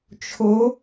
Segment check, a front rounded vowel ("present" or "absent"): absent